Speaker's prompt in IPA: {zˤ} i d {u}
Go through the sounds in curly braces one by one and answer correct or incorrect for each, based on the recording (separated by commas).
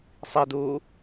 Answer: incorrect, incorrect